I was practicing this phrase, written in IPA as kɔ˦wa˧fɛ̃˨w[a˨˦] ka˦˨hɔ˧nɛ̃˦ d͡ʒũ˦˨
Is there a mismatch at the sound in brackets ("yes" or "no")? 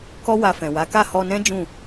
no